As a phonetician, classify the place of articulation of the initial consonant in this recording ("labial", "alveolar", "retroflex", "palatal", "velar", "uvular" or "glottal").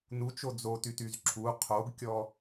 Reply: alveolar